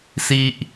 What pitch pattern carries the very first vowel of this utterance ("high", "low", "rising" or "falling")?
high